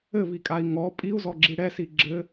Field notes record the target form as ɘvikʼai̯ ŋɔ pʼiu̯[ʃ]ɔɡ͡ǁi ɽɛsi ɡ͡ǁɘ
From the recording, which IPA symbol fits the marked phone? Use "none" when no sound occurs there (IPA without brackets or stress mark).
z